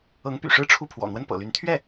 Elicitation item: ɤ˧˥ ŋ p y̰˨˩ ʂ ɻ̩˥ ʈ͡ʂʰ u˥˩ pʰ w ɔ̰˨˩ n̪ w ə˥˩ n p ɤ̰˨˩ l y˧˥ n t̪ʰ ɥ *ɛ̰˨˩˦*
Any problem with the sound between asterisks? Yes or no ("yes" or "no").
yes